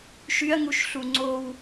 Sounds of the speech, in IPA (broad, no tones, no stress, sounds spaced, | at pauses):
ʃ y ɐ̯ ŋ u ʃ ɬ u ŋ͡ǀ o w